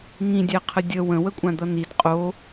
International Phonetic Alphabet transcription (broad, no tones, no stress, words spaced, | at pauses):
ŋĩdʲæqʰə dʲə wə̃wəkʷʼãd̪ʌ nid qʼo